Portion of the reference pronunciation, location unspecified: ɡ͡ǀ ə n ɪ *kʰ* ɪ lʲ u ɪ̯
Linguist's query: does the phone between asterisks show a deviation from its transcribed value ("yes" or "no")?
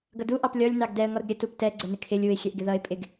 no